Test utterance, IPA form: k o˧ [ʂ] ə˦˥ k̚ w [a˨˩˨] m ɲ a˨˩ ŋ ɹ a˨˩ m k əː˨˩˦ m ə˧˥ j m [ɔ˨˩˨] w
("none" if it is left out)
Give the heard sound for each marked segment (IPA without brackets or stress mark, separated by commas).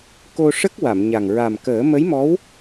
ʂ, a˨˩˨, ɔ˧˥